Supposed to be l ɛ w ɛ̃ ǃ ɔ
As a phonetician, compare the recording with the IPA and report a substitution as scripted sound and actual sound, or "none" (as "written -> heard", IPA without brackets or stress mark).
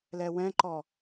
none